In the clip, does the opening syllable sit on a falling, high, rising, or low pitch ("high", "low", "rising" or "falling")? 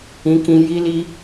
high